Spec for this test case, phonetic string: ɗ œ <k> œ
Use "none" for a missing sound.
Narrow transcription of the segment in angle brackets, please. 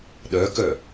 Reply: k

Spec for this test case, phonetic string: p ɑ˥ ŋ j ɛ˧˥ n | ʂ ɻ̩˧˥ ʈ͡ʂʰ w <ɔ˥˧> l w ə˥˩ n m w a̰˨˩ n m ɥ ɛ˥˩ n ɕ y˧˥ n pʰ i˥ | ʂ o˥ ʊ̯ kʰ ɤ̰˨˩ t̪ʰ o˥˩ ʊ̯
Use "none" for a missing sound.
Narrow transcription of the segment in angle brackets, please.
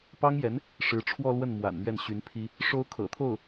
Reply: ɔ˥˧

